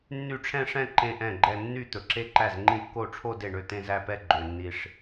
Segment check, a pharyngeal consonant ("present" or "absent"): absent